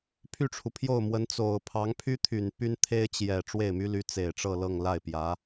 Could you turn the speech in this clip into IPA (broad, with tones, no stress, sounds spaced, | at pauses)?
pʰ y˥˩ ʈ͡ʂʰ u˩ pʰ j o˥˩ ʊ̯ m w ə˧˥ n t͡s o˨˩ ʊ̯ pʰ ɑ˧˥ ŋ pʰ y˥ t̪ʰ y˨˩ n p y˥ n t̪ʰ e˥ ɪ̯ t͡ɕ j ɛ˨˩ ʈ͡ʂ w e˥˩ ɪ̯ m y˥ l y˧˥ t͡s e˨˩ ɪ̯ ʈ͡ʂ ɤ˥˧ l ɤ˥˧ ŋ l a˥˩ ɪ̯ p j ä˧˥